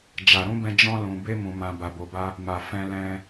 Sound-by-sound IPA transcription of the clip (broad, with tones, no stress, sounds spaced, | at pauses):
d͡ʒ a˨ ɾ ũ˧ b ɛ̃˧ d͡ʒ ɔ̃˦ l ũ˧ b e˦ m ũ˧ m ã˧ b a˧ b o˧ b a˦ | m a˨ f ɛ̃˧ l ɛ̃˧